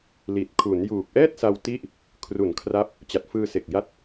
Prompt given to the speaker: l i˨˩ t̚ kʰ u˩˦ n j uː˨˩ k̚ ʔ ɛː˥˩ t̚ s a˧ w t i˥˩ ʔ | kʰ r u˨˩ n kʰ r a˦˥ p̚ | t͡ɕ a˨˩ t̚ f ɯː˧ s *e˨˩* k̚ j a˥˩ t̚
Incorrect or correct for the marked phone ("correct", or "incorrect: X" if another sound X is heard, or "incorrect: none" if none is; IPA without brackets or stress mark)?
correct